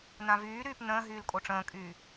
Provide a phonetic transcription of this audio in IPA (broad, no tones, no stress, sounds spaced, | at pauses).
n ã v yː ɾ yː p n ə̃ː ɦ yː l kʼ o ʈ͡ʂ ə̃ː kʼ yː